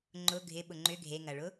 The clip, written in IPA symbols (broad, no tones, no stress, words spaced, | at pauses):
ŋ͡ǃʊ ɡʱɪɓʊ ŋ͡ǃʏ ɡʱeŋɐɭʊ